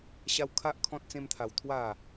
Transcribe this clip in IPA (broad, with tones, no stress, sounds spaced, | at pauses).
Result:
ɕ a˦ w kʰ a˦ ʔ kʰ ɔ̃˦ t̚ t͡s ẽ˦ m t̪ʰ a˧ w t̪ʰ w a˥˧